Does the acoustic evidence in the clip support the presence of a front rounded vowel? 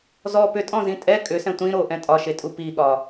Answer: yes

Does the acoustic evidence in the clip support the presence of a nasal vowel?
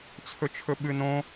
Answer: yes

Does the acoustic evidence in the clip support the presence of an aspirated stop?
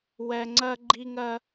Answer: no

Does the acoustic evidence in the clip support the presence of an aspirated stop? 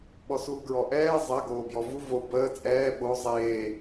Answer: no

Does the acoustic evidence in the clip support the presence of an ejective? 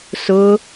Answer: no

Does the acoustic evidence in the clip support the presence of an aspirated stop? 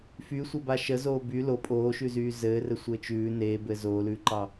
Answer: no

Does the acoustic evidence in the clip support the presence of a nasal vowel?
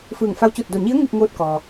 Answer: no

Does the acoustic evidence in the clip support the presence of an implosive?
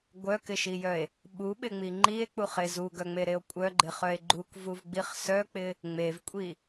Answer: yes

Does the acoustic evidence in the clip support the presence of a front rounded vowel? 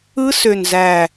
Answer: yes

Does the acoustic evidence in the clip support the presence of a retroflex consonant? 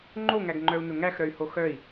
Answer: no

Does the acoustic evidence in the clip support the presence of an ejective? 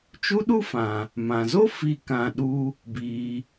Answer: no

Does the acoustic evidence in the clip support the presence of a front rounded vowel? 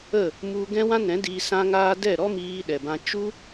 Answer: no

